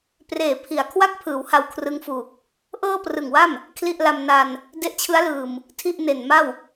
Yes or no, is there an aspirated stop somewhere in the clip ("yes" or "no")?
yes